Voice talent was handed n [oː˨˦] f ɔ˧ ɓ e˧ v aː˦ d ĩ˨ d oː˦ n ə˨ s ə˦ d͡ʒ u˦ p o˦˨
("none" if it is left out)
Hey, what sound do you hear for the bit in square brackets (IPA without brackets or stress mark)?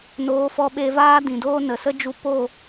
oː˨˦